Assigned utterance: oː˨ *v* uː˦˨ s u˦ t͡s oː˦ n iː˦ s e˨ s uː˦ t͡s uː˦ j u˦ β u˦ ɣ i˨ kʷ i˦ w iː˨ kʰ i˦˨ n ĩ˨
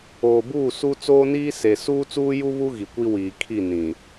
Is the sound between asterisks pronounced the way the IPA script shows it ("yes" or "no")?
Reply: no